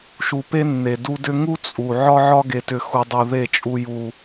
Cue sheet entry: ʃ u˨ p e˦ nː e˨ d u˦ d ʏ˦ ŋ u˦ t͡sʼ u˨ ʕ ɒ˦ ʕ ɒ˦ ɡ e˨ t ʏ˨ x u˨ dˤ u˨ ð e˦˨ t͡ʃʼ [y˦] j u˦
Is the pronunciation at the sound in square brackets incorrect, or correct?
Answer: incorrect